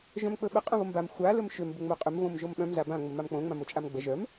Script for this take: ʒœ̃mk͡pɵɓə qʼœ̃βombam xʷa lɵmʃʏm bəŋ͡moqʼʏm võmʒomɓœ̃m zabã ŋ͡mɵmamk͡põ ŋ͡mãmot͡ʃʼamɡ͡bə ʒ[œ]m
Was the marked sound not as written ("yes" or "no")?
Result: no